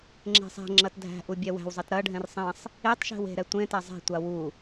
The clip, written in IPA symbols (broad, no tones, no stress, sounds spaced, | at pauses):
ŋ͡ǁ e̤ sˤ ɛ̤ ŋ͡ǁ ɐ t dʱ æ̤ ʔ u bʲ ɛ w æ̤ w zˤ ɛ t ɾ ɐ ɖʱ ɛ̃ r sˤ ɛ̃ sˤ | e tˤ ʃ e̤ w e̤ ɾ ɛ tʷ ẽ t æ zˤ e̤ tʷ a w u